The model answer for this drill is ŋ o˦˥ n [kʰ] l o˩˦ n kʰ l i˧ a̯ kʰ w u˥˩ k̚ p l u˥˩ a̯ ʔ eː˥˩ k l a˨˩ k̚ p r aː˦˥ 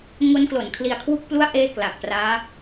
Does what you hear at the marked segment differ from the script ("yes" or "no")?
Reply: yes